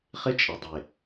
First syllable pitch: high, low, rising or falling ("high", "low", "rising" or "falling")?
high